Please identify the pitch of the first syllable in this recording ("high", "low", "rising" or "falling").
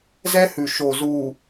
high